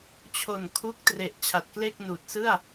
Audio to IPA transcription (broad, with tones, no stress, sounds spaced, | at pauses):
t͡ɕʰ o˨˩ n kʰ u˦˥ k̚ t r e˨˩ ʔ t͡ɕʰ a˨˩ t̚ k l e˥˩ k̚ n uː˨˩ t̚ s ɯ˥˩ a̯